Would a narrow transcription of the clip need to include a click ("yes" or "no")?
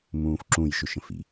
yes